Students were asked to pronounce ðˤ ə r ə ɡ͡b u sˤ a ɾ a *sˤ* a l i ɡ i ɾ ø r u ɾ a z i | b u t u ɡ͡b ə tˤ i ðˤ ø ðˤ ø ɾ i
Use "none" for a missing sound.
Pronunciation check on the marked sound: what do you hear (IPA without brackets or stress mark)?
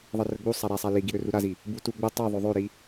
sˤ